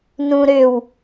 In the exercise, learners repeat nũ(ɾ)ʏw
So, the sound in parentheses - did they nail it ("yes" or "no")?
yes